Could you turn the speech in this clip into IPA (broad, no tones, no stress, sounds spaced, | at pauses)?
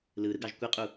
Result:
l ɯ ɾ ɯ ɡ ɑ ʒ kʷ i qʼ u